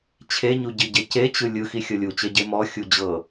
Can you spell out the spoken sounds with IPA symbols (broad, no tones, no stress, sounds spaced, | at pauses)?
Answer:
t͡ɕʰ e ɲ u ɟ i ɟ e c e t͡ɕ ɯ lʲ ɯ x i xʲ ɤ lʲ u t͡ɕ e ɟ e m ɔ xʲ u d͡ʑ ɤ